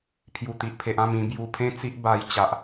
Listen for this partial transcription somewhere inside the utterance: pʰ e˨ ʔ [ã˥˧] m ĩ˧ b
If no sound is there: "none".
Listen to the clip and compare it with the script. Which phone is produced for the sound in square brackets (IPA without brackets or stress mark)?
ã˥˧